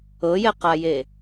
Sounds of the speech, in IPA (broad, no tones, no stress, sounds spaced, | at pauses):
ɤ j ɛ q a j e